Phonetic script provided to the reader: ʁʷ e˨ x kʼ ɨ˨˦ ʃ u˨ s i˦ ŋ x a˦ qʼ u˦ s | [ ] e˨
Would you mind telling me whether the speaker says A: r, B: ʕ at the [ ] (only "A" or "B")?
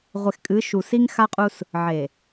B